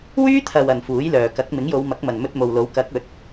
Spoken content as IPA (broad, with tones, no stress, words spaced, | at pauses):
wyː˥t̪ʰɐ˨w ɐ˨n fuː˨˥jlœː˨ kɐ˨˥k̚ mɪ˨˥ŋjo˨˧wmɐ˨˥k̚mɐ˨n mɵ˧t̚mo˨wlo˨˥w kɐ˨˥k̚ ɵ˨˥t̚